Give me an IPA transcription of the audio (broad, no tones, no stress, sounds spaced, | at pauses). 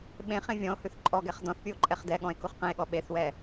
ɓ ẽ χ ẽ vʲ ɔ̃ o̯ h ʉ θ ǃʼ ɔ ɡ ɛ χ d ɔ̃ θ pʲ u o̯ ǃʼ ɛ χ d ɛ ɠ ɔ̃ e̯ k u χ q ɛ̃ e̯ ɠ ɔ ɓ e θ w ɛ